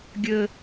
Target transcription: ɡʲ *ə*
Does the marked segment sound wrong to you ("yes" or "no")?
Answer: no